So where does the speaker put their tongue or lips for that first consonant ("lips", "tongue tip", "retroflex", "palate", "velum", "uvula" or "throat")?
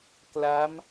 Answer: velum